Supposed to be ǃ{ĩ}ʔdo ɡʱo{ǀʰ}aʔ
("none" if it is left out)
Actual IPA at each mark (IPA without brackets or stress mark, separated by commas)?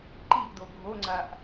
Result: i, ŋ͡ǀ